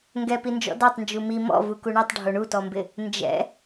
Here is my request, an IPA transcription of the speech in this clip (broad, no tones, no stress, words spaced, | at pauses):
ŋɡɛpind͡ʒɔ̰ datˤ nd͡ʒumi mɔ̰ vukuɳutˤ ɖʱoɳutɔmbɪ | nd͡ʒɛ̰